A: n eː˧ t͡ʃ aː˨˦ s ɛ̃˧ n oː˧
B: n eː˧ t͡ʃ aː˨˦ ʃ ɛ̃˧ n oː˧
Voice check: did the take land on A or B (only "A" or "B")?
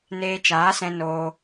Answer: A